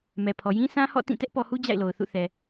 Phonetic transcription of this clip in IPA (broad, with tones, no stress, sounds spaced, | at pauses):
m ɛ˨ pʰ ɔ˨ j ĩ˦ sʰ ã˦ h ɔ̰˦˨ t ĩ˦˨ t ɛ˦ ʔ p ɔ˨ h u˦ d͡ʑ a̰˦˨ ɪ̯ l o˨ ʊ̯ θ ṵ˦˨ θ ɛ˨